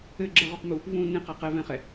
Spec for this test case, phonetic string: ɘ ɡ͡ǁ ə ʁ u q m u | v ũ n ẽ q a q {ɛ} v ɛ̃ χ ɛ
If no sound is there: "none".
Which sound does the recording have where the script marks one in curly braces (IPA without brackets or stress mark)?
ɛ